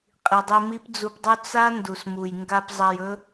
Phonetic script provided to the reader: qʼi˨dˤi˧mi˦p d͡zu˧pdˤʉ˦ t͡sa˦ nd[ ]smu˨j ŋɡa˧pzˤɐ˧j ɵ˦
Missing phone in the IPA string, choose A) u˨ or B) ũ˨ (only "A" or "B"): A